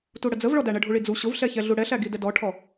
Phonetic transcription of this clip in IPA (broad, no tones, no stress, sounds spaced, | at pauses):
t u ɽ ə d͡z ə v ɭ ɔ d æ ɳ ə ɖʱ u ɭ i d͡z u ɕ ʊ v ɬ ɛ ç ɛ ɮ u ɽ ɛ ɬ æ ɡ i d ɛ d ɔ ʈʰ ɔ